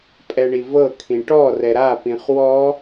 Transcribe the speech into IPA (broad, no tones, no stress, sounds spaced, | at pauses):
pʼ ɛ ɳ i v ɤ kʰ ĩ ʈ ɔ r ɛ ɾ a p ĩ χ w ɔ